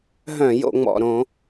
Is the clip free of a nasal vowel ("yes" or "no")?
no